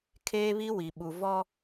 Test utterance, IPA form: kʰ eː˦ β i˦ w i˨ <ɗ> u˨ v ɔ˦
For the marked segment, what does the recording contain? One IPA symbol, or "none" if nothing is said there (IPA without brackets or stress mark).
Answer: ɓ